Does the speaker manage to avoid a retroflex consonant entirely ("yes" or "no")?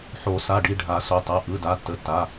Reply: no